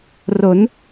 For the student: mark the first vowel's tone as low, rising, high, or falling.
rising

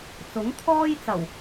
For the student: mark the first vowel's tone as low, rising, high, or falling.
rising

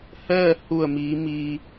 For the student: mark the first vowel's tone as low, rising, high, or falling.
falling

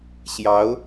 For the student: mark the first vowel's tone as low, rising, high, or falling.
rising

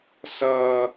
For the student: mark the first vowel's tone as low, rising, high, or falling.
high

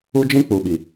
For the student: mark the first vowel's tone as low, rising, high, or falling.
high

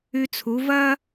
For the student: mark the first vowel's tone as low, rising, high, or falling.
high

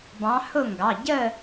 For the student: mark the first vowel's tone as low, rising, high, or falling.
rising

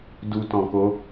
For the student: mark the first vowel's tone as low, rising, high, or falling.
low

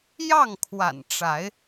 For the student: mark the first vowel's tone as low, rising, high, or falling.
falling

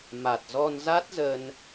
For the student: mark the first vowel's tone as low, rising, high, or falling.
low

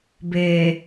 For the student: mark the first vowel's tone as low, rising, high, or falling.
low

